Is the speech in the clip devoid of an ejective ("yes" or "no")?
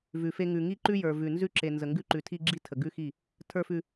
yes